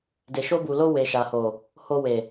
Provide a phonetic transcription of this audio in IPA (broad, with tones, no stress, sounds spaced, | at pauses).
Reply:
d e˨ ʃ o˧ b u˨ l o˧ w e˨ ʃ a˨ h o˨ | h o˧ w e˨